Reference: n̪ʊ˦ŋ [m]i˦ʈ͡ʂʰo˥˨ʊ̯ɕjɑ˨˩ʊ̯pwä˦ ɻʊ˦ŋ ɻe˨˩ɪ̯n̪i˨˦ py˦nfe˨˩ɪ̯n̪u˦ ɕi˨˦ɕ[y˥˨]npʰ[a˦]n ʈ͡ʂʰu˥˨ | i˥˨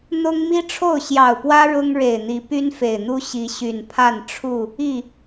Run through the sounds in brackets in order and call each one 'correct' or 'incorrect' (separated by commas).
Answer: correct, incorrect, incorrect